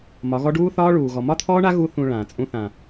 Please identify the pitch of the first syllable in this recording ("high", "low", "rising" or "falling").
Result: rising